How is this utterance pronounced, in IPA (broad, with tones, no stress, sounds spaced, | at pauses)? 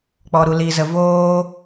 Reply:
k͡p ɔ˧ ɾ u˧ l iː˧ z ə˧ v oː˦